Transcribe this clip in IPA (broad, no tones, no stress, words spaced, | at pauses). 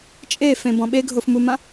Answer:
t͡ʃʼefẽbɔ̃ ɓeɡʱofmumã